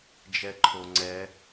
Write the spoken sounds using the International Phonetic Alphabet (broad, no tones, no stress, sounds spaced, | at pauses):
d͡ʒ ɛ ǃʰ o ŋ͡ǀ ɛ